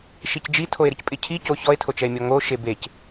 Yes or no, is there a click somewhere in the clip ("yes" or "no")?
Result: no